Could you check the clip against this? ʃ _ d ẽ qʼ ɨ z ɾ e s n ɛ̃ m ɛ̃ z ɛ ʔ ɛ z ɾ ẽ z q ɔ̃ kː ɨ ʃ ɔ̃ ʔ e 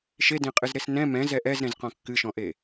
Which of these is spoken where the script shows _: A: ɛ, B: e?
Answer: B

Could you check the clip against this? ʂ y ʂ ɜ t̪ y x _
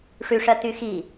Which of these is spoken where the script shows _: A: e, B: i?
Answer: B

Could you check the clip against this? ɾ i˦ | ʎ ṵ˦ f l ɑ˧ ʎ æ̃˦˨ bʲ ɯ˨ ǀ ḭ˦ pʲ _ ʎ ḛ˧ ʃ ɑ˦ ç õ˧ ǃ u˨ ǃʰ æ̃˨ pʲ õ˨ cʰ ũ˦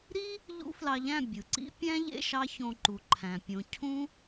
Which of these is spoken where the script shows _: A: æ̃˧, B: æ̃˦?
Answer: B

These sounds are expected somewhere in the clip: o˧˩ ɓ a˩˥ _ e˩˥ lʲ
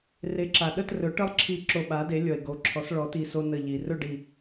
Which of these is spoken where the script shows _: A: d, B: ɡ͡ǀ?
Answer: A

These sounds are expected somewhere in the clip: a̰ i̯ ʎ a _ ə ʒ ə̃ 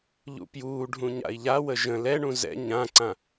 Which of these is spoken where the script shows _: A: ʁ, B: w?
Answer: B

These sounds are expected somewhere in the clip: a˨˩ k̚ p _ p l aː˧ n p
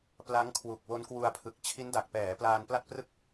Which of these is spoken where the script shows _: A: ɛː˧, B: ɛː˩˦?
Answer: B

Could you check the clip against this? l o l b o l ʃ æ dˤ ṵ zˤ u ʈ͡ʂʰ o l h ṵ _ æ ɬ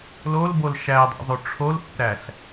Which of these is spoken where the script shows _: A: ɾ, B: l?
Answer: A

